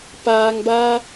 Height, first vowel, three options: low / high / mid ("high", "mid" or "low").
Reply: low